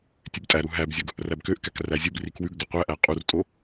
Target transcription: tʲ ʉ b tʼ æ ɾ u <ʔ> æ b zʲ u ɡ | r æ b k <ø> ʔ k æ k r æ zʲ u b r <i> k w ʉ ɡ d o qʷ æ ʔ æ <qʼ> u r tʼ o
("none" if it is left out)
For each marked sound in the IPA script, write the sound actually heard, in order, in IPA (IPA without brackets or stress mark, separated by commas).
ɦ, ø, i, qʼ